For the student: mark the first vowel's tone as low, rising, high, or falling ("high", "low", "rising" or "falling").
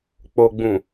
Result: low